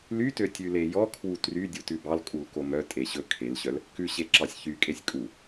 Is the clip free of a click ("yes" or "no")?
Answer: no